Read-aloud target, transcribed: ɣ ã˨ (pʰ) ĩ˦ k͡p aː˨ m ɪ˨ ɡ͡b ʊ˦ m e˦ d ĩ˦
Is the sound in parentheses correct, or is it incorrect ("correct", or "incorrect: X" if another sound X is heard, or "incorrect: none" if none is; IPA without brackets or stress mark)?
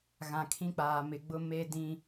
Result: incorrect: kʰ